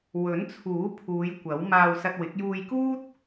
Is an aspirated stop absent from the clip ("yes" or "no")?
no